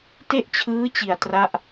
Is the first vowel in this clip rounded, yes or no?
no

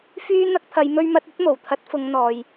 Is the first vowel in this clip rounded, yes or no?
yes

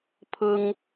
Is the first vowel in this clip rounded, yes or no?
yes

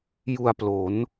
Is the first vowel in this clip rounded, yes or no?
yes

